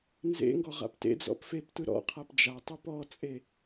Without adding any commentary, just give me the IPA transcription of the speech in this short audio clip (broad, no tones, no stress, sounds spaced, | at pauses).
n z ḛ ŋ ɡ ɔ ʁ a̰ p t ḛ d͡z ɔ̰ p f e p t ɯ ɾ ɔ̰ qʰ a p d͡ʒ a tˤ ɯ p ɔ t͡sʼ e